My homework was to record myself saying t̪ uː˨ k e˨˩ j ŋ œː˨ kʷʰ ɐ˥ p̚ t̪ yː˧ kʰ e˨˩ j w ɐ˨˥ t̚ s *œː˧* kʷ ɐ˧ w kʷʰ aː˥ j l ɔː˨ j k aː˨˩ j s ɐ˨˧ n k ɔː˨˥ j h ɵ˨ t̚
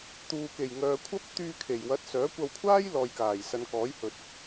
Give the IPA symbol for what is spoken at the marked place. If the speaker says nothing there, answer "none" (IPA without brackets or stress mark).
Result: œː˨˥